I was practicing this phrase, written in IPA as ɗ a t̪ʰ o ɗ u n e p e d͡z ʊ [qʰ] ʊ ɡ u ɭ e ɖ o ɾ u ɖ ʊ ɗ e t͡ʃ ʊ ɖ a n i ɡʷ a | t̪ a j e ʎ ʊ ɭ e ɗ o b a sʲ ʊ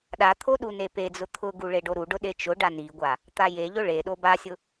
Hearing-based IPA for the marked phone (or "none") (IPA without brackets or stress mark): t̪ʰ